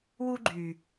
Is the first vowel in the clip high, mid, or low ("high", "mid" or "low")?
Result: high